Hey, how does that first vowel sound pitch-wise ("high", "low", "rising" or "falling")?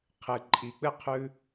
low